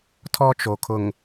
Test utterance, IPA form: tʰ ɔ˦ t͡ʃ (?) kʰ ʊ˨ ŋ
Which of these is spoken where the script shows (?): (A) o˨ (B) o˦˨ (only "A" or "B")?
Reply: A